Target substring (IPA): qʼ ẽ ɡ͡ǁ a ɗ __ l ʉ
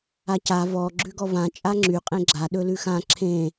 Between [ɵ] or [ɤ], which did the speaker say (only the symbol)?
ɵ